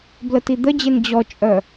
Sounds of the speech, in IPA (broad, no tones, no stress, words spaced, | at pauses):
blətid̪əd͡ʑen d͡ʑɔt͡ʃʼœ